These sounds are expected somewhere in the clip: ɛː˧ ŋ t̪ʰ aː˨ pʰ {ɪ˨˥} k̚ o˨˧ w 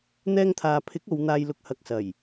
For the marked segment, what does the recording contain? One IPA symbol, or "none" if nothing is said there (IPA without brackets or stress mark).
ɪ˨˥